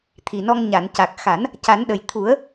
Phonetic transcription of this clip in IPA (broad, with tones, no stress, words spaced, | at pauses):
t̪ʰi˨˩nɔ˧ŋ ɲa˨˩˨n ca˨˩k̚ xa˨˩˦n | ca˨˩˦nɗə˨˩j t̪ʰu˨˩˦ə̯